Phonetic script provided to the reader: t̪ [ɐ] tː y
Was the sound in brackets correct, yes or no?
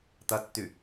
yes